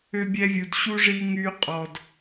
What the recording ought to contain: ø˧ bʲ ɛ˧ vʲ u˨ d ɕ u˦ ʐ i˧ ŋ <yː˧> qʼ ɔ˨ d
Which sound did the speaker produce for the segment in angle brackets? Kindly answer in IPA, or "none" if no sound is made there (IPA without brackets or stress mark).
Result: yː˧